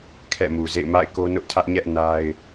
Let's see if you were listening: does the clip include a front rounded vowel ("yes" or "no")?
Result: no